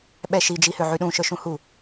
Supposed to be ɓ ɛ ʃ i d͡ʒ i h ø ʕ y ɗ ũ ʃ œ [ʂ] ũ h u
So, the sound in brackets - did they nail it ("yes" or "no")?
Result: no